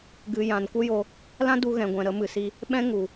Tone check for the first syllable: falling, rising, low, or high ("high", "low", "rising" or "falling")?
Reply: low